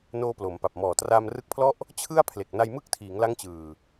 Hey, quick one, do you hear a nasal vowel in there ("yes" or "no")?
no